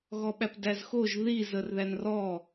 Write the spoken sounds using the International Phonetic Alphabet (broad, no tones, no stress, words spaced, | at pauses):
ɣɔɓæpdæzxoʒ ðiz ərðænrɔ